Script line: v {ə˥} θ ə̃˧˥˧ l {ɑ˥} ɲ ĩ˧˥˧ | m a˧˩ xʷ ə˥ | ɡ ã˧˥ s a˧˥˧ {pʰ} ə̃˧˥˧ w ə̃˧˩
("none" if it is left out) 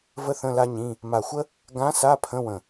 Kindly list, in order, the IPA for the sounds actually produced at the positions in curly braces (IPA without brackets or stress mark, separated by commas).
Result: ə˥, a˥, pʰ